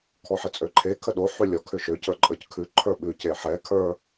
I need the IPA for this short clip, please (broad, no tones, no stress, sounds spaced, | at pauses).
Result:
kʰ ɔ ħ i t͡sʼ ø ǃʰ e kʰ ə ɗ o ħ ʉ lʲ ɔ kʰ ʏ ʃ ø c ə˞ ǃʼ ə˞ c kʰ ʉ ǃʰ ə˞ ɓ ʉ c e ħ ɛ kʰ ə˞